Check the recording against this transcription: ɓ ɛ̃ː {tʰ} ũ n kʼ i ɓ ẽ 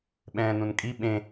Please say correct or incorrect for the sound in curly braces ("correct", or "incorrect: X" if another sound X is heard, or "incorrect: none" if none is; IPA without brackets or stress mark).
incorrect: n